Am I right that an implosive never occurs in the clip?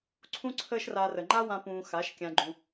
yes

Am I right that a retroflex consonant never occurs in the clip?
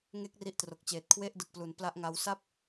yes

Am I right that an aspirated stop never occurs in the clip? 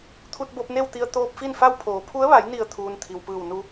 no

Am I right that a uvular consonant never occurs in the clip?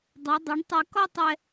yes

